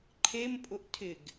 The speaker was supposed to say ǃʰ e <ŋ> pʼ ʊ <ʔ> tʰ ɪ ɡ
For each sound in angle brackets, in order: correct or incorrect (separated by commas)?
incorrect, correct